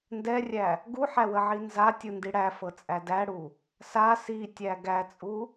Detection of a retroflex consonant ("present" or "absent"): present